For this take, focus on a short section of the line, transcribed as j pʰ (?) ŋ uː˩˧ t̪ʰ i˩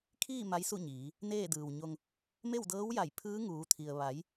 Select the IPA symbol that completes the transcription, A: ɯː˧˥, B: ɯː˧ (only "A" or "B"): A